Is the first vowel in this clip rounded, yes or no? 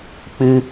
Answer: no